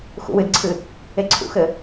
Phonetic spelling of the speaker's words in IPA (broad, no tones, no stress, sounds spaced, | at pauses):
x ṵ w ɨ d ǀʰ ɨ | e ǀʰ ṵ x ɘ